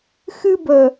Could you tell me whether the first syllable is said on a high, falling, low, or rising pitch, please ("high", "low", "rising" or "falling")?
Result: high